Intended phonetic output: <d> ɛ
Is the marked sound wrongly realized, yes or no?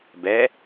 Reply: yes